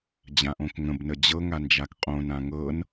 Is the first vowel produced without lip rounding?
yes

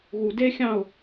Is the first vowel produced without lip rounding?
no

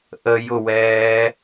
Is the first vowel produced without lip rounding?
yes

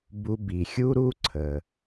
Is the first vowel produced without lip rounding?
no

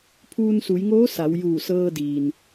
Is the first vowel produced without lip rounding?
no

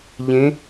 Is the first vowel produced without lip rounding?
yes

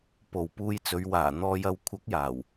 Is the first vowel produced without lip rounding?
no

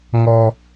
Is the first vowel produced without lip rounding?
no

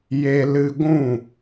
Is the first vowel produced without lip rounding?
yes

